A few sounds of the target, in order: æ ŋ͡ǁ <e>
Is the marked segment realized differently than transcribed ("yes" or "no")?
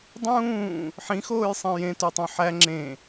yes